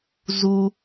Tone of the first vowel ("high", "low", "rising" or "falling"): low